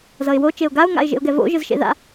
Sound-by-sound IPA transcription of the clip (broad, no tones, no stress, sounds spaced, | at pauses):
z ʌ ɪ̯ w o t͡ʃ e ʊ̯ ɡ a ʊ̯ ŋ a̰ ɪ̯ ʒ ḛ ʊ̯ ɡ ɛ v o̰ ʒ ɯ z ʃ ḛ ð a̰